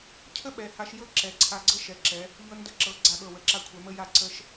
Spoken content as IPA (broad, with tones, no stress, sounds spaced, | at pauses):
cʰ ə˥ ɓ ɛ˩˧ h a˧ ʃ j ɤ˥ ǁ ɛ˩˧ ǀʰ a˧ ɡ͡ǀ ɤ˥˧ ʃ ɛ˩˧ ǁ ɛ˩˧ | ʎ ɤ˧ n d ə˧˩ ǁ ɤ˩˧ ɡ͡ǀ a˧˩ ɠ ɤ˧˩ w ə˩˧ ǁ a˧ kʷʰ ɛ˩˧ m ə˧ j a˧˩ ǀ ə˧ ʃ